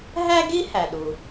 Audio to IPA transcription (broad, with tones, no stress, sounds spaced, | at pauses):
ɦ æ˥ ɡ i˥ h æ˩ ɗ u˩